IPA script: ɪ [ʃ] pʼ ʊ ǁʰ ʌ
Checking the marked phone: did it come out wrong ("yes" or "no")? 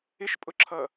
no